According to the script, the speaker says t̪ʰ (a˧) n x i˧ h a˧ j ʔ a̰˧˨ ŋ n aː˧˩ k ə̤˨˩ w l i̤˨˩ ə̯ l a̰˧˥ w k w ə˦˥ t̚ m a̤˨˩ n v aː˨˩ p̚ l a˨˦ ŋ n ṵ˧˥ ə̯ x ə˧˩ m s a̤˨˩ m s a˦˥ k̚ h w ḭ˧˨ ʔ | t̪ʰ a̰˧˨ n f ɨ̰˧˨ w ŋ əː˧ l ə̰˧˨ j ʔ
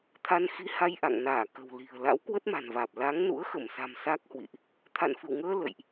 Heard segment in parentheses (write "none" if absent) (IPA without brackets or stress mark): a˧